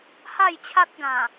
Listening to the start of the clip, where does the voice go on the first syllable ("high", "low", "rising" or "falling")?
falling